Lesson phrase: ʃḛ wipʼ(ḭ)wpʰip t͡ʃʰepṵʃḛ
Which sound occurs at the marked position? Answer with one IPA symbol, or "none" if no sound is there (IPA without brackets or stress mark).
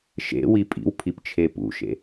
ḭ